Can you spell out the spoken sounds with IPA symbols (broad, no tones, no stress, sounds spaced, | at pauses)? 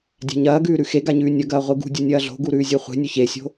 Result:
dʲ a̤ ɲ ɐː ɡ ʉː ɾ ʉ x e ɡ a ɲ ʉː nʲ ɐ ɡ ɐː ʁʷ i ɡ ṳ dʲ o nʲ ɐː ɮ o̤ ɡ u ɾ ʉː zʲ e χʷ e̤ nʲ ɵ ç e sʲ o̤